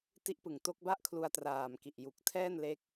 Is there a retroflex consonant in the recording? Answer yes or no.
no